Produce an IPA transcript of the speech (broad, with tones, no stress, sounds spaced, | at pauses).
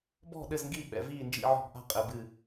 b ɔ̤˥˨ ɗ ɘ˥˨ z ŋ ɡ i˥˨ ɓ ɛ̰˧˩˧ v iː˥˨ n d͡ʒ ḭ˥˨ ʕ ɔ̤˥˨ b ʔ a̤˥˨ qʼ ɘ˧˩˧ b ɨ˥˨